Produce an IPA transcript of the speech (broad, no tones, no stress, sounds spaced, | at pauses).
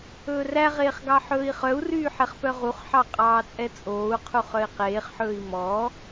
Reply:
ɵː r æ ʁ eː χ ɡ ɑ ħ ɵː i̯ χ œ u̯ r yː ħ ɛ χ p œ ʁ u χ ħ ɑ qʼ ɑː t͡sʼ ɛ t͡sʼ oː u̯ qʰ u χ œ i̯ q eː χ ħ ɵː i̯ m ɔ